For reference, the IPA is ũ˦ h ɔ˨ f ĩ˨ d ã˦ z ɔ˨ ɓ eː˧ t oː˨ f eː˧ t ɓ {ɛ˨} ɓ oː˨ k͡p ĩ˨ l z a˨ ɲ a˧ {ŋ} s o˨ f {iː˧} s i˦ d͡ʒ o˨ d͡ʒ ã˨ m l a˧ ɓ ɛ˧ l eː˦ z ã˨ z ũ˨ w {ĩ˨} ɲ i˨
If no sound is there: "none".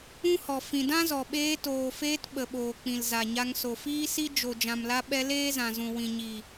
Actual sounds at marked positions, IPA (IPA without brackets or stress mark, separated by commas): ə˨, ŋ, iː˦, ĩ˨